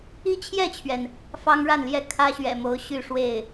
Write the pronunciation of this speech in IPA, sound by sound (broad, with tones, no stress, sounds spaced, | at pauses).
i˥˧ t͡ɕʰ j ɛ˥˩ t͡ɕʰ ɥ ɛ˩ n | f ɑ˥ ŋ ɻ a˥˩ n l j ɛ˥ kʰ ä˥ ɕ ɥ ɛ̰˨˩ m o˧˥ ʊ̯ ɕ y˥˧ ʂ w e˥˩ ɪ̯